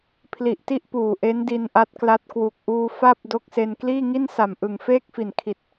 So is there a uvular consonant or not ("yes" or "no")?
no